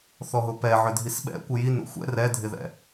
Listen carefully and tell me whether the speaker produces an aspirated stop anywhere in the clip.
no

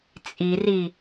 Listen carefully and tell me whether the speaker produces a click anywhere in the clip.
no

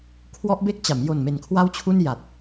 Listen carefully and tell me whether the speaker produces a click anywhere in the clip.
no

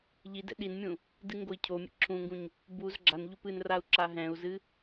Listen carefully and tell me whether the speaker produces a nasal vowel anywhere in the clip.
yes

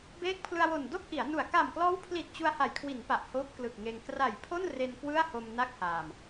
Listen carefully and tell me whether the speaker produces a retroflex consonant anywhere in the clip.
no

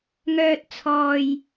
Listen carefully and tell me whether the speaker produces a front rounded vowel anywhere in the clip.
yes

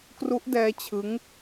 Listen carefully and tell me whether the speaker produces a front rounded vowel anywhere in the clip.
no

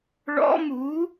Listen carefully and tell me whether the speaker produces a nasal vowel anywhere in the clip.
no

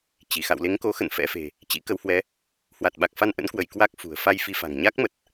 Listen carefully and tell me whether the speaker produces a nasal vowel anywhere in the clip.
no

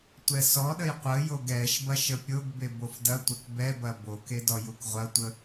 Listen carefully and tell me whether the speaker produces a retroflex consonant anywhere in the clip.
no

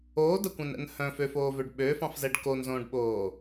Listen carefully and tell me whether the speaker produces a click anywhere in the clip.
no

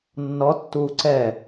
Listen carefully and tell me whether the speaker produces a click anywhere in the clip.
yes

